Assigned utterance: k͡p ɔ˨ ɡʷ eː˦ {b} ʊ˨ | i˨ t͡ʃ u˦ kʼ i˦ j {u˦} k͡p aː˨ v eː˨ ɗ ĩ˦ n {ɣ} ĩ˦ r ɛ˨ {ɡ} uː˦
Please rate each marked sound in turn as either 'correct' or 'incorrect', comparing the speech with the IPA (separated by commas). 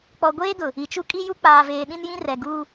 incorrect, correct, incorrect, correct